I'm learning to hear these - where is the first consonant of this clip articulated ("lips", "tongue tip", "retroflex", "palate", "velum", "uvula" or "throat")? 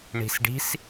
retroflex